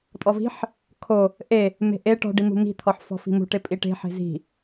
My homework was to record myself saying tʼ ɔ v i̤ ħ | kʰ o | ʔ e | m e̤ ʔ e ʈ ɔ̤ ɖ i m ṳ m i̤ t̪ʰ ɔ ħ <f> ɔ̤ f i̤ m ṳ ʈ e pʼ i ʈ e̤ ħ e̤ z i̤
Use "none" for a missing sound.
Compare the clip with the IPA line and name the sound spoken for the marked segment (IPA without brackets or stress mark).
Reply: f